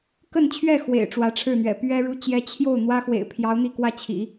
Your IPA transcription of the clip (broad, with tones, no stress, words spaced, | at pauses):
kə˥˧nt͡ɕʰɥɛ˥˩ xwḛ˨˩ɪ̯ ʈ͡ʂwä˧˥ʈ͡ʂʰɻ̩˥˩n̪ɥɛ̰˨˩ pɥɛ˥ɻu˥ t͡ɕjɛ˧˥ t͡ɕʰjo˥˩ʊ̯n̪wä˥xwḛ˨˩ɪ̯pʰjɑ˧˥ʊ̯ n̪i˥˧ kwä˥˩t͡ɕʰḭ˨˩˦